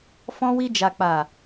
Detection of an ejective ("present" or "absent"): absent